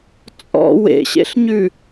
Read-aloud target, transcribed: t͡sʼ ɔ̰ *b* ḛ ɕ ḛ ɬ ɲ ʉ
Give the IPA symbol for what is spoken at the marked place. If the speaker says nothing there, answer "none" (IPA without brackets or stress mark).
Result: w